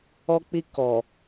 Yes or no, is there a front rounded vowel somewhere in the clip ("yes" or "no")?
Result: no